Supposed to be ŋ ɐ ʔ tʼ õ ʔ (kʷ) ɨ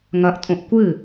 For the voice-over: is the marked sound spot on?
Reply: yes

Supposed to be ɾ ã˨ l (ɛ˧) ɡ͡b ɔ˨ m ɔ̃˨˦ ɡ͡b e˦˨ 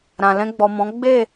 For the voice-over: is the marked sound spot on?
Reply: no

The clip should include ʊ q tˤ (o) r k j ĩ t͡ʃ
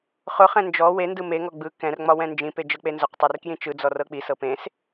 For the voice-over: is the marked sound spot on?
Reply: no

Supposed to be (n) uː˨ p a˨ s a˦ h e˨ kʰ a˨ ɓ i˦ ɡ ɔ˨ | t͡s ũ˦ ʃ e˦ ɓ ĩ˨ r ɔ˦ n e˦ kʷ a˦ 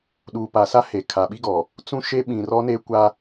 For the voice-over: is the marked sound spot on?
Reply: no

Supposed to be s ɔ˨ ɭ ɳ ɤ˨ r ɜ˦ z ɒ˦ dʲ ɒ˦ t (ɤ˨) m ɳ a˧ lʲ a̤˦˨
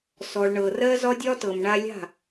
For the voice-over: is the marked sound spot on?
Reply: yes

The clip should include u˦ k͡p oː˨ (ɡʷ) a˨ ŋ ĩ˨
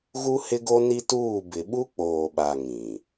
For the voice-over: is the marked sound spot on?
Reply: no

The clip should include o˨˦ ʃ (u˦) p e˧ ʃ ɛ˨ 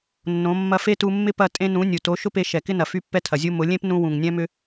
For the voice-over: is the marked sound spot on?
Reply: no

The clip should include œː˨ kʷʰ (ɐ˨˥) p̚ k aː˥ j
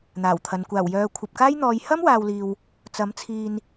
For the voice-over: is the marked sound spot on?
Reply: no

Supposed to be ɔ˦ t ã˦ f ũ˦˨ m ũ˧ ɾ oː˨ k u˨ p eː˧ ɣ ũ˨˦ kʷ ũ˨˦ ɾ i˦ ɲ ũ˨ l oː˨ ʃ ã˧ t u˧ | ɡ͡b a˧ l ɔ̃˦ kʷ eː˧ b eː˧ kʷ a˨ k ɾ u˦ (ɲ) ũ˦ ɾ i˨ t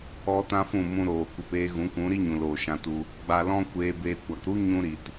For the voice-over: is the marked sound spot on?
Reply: yes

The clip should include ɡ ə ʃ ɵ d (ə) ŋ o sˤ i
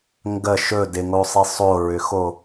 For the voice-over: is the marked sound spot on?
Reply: no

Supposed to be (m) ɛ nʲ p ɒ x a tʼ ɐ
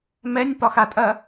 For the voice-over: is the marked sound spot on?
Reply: yes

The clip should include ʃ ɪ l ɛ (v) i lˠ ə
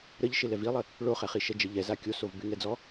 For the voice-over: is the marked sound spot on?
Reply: yes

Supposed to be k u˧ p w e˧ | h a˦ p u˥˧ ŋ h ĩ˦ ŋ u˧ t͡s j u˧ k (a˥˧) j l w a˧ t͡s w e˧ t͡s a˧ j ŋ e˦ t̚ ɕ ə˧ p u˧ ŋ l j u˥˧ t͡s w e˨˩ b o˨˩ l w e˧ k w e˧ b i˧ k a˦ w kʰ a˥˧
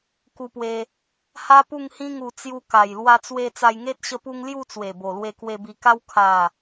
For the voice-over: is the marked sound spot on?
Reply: no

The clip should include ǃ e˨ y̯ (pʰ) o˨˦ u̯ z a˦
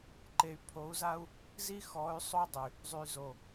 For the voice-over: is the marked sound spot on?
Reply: yes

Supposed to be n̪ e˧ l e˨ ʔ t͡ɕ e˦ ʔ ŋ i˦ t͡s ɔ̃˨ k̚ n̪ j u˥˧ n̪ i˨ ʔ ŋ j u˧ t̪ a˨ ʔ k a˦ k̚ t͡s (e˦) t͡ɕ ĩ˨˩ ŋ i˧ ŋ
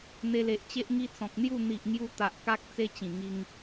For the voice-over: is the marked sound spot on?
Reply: yes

